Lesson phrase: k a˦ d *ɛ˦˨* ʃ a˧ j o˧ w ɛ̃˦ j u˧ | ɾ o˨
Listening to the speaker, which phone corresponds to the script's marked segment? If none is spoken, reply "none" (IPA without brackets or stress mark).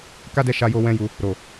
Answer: ɛ˦˨